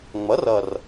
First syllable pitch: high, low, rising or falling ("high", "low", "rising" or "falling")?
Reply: rising